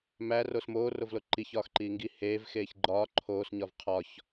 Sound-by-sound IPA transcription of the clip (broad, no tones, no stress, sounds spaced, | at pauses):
m æ r o s m oː r o v l o ǃ i ç ɒː x ǃ iː ŋ ɡ i h eː v x eː ç ɡ͡ǃ ɒː ǃʰ oː s ɲ ɒ v qʰ ɒ ç